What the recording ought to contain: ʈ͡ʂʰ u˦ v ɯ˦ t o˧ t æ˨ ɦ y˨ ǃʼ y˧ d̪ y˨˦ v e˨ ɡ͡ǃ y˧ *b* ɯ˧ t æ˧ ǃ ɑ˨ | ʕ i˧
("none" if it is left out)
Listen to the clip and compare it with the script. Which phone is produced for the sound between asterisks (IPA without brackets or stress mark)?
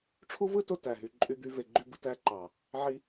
b